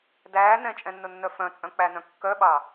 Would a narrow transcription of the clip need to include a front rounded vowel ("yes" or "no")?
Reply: yes